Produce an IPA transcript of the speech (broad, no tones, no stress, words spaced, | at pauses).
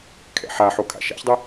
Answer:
kʰɛ̰ħaħo kʰa̰ʃa̰çdˤɪ